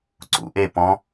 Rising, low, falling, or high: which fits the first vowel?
rising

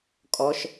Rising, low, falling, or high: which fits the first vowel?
rising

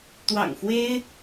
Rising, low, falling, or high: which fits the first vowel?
low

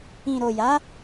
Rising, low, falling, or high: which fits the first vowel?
low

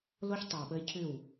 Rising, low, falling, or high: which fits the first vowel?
high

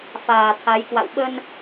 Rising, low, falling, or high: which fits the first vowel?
low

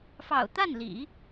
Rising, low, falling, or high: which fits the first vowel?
low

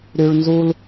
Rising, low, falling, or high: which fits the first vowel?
high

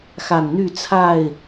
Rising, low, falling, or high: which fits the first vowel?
low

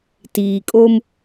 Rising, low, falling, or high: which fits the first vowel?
low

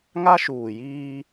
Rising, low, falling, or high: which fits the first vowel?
high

